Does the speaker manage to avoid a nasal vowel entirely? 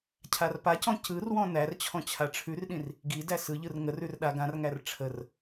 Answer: no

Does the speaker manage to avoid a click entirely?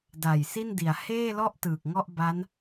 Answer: yes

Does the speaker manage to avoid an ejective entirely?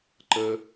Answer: yes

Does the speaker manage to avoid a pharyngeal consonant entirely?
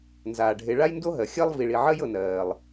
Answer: no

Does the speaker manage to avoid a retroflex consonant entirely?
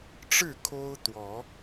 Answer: no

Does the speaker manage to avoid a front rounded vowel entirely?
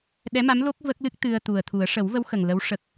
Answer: yes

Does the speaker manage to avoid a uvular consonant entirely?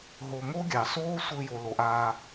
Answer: yes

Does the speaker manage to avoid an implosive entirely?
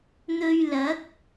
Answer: yes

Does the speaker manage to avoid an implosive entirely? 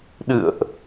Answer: no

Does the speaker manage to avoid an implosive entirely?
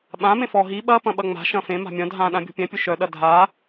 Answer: no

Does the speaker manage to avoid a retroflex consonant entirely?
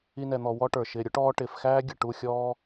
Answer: no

